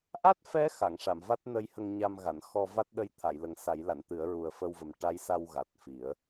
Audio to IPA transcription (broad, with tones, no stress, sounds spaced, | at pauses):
ʔ a˦˥ t̚ f ɛ˧˥ x a˨˩˨ ŋ ʂ a˨˩˨ m v a˦˥ t̚ n ə˧˥ j h ə˧ ŋ ɲ a˧ m ɣ a˨˩˨ n x ɔ˧ v a˦˥ t̚ ɗ ə˧ j t̪ʰ a˨˩˨ j l ə˨˩ ŋ s a˨˩˦ j l a˨˩˨ n t̪ ɨ˨˩˦ ə̯ ɹ u˨˩ ə̯ f ə˧ w v ə˨˩ m ʈ a˧˥ j s a˧ w ɣ a˨˩ t̚ f i˨˩˦ ə̯